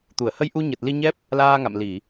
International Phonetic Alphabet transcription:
t̪ u˧˩ ə̯ h ə˧ j ʔ u˧ ɲ ə˨˩ t̚ l i˧ ɲ ɛ˦˥ p̚ | l aː˧ ŋ a̰˧˨ m l i˧˩˨

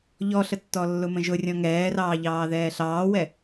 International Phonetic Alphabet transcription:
ʎ ɔ ɬ ə tː ɔ lː ʊ m ə̃ ʒ ʊ rʲ ɔ̃ ŋ ɛː r ɑː ʎ ɑː ð ɛː ɬ ɑː w ɛ

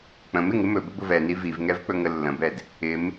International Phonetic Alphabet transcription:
k͡p ə̃ m ɪ ŋ ɪ m ɵ b ə b ʊ v ɛ n i v i v ŋ ɛ v k͡p ɵ ŋ ə lː ə̃ b ɛ d | ɪ m

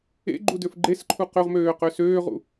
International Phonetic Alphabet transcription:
ḛ ɡ͡ǃ u d ø f ɡ͡ǃ e s ǃʰ u q ø ʁ m øː q ø s øː ʁ ṵ

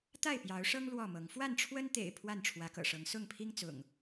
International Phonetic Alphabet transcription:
t̪ a˥˨ ɪ̯ p j ɑ˨˦ ʊ̯ ʂ ɤ˦ ŋ l w ɔ˥˨ m ɤ˨˦ ŋ f w a˥˨ n ʈ͡ʂʰ w ə˦ n t̪ ḛ˨˩ ɪ̯ pʰ w a˥˨ n ʈ͡ʂʰ w ä˨˦ k ɤ̰˨˩ ʂ ɤ˨˦ ŋ s ʊ˥˨ ŋ pʰ i˦ ŋ t͡s ʊ̰˨˩ ŋ

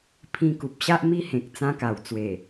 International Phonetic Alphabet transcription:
pʰ ĩ˧ k u˨ p̚ ɕ a˦ ʔ m i˦ h ẽ˨ k̚ t͡s ã˧ k a˨˩ w t͡s w e˨˩

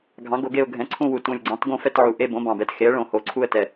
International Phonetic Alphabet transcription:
ɡʱ ɑ̃˩˥ ɡ o˧˩˧ ɡ e˦˨ ʊ̯ ɡʱ ɛ̃˩˥ ǀʰ ũ˦˨ w u˨˩ t ũ˨˩ lʲ ɡ͡ǀ ɑ̃˩˥ t ɡ õ˦˨ f ɛ˦˨ t ʕ u˨˩ ʔ e˦˨ b õ˩˥ b ɑ̃˨˩ b ɛ˩˥ t x e˩˥ ə̯ ɭ õ˧˩˧ h o˨˩ ǀʰ u˦˨ ə̯ t ɛ˨˩

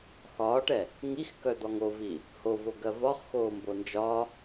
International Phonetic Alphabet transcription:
x ɒː ʈ ɛ | ŋ i x k œ d̪ ɒ ŋ o v i | h o v o ɡ ɜ v ɒ χ x oː m b o n d͡ʒ ɒ

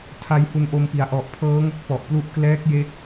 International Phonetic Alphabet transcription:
tʰ a˧ j h u˧ n ʔ o˧ m p i˩˦ a̯ ʔ ɔ˨˩ ʔ pʰ ɤː˦˥ ŋ o˦˥ k̚ p ɔ˨˩ ʔ p l u˦˥ ʔ k l ɛː˦˥ k̚ j e˦˥ k̚

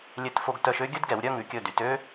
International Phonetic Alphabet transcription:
lʲ ø˧ t f o˧ ɡ t œ˧ ʃ ø˥ ɡʲ ɵ˥ d ɡ ɛ˩˧ w ɾʲ œ˥˧ ŋ ʉ˩˧ kʲ ɵ˧˩ d y˩˧ t ø˥

